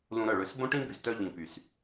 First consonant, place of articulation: alveolar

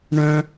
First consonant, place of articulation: retroflex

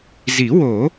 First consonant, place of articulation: alveolar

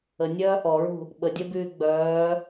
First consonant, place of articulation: alveolar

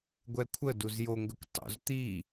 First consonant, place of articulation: velar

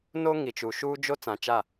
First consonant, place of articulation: alveolar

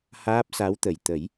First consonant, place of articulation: glottal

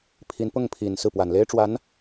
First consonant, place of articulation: labial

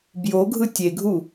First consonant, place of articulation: labial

